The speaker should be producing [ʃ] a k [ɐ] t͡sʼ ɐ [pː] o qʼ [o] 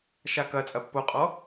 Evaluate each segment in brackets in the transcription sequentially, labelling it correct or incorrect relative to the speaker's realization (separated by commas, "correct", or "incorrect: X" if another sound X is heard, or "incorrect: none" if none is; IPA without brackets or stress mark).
correct, correct, correct, incorrect: ɔ